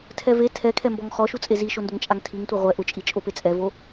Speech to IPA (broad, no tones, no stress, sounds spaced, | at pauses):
tʰ ɛ v e tʰ ɛ kʰ ɛ m b ɔ ŋ χ ɔ ʃ u t͡sʼ e z i ʃ o n d ʊ ŋ t͡ʃʼ a ŋ tʰ i ŋ tʷ ɛ ʁʷ ɛ ʔ ʊ t͡ʃʼ i t͡ʃʼ o p e t͡sʼ ɛ v o